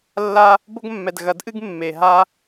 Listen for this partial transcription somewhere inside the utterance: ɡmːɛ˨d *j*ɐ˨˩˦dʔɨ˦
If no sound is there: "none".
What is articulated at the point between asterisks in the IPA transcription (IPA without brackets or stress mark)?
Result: ɣ